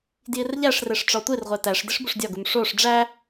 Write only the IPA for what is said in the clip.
d j i r ʎ æ ʂ r e ʂ ʈ͡ʂ ɒ tʷ i r ʁʷ e t æ ʂ d i ʂ b u ʂ dʲ ɒ ɡ u m ʂ o ʂ ɖ͡ʐ æ

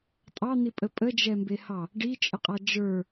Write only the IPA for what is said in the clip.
tʼ ɑ n̪ i pʼ ə pʼ ə d͡ʒ ɛ m b e h ɑ | ɖ i t͡ʃʼ ə qʼ a d͡ʒ ə˞

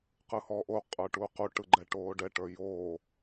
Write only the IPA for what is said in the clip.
q ɯ h ɔː ʔ o qʼ ə˞ ʈ uː q u ʈ ɯ ɡ͡ǃ ɛ ʈ oː ɖ ɛ ʈ ə˞ j oː

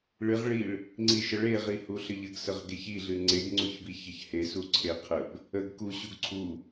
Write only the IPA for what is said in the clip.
ɭ ɨ ʁ ɭ i ɭ | ŋ͡ǀ i ʃ ə ɭ e ʁ i h u ɬ ə ʎ ə ɡ s ə ʁ ɡ e ç i ɮ ɨ ŋ͡ǀ e ɡ ŋ͡ǀ u ç b i ç ə ç h e s u ǀʰ e qʰ ə b | ə ɡ k u ɕ u ɡ ǀʰ u

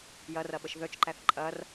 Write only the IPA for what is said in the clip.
j ɐ r ɐ ɓ ə ʃ ð œ t͡ʃ ǃ æ θ ǃʼ ɐ r

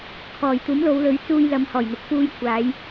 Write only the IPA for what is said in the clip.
kʰ ɔː˨˩ j t̪ uː˨˥ m l o˨˧ w l ɵ˨˥ ɥ t͡s uː˧ j l ɐ˨ m h ɔː˨˩ j n̪ ʊ˨ k̚ f uː˧ j kʷʰ aː˨˧ j

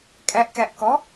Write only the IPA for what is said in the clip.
kʼ æ ʔ k æ ʔ k ɔ

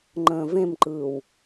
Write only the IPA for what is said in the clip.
ŋ͡ǃ ə̃ː v ẽ m ǃ ɯː w

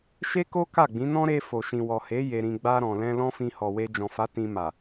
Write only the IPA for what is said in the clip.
ʃ e˦ k o˦ k a˦˨ ɡ͡b ĩ˨˦ n ɔ̃˦ ɾ e˧ f o˨ ʃ ĩ˨ w ɔ˨ h e˨˦ j e˧ ɾ ĩ˧ ɡ͡b a˧ ɾ ɔ̃˨ l ɛ̃˧ l ɔ̃˦ f ĩ˧ h ɔ˨ w e˧ d͡ʒ ɔ̃˨ f a˨˦ t ĩ˧ m a˨

